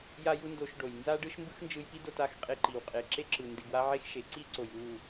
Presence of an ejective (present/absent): present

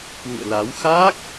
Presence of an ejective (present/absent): absent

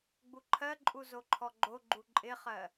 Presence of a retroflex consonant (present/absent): absent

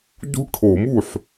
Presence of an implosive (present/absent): absent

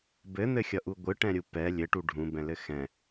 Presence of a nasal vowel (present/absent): present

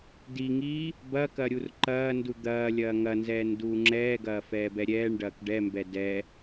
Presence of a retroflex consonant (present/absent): present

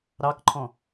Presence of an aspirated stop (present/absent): present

